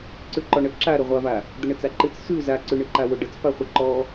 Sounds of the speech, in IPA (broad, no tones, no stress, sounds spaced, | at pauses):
ǀ ʉ ǃ ɔ ɳ ə ǁ a ɾ ə ʁʷ a v a | d̪ ə ɳ ə t͡s a ǃ ɨ t͡s s ʉ z a ǀ ʉ ɳ ɨ ǃ a w ʊ ɖ ə t͡s p a χʷ ɨ ǃ ɔ